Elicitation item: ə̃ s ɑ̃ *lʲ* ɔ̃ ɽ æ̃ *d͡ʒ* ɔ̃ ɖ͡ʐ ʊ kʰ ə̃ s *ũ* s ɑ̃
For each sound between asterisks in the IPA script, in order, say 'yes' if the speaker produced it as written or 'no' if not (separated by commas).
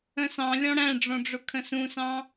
yes, no, yes